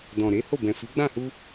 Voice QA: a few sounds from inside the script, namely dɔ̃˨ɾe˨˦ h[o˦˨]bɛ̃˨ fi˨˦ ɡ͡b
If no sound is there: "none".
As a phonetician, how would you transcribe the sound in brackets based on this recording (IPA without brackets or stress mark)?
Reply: o˦˨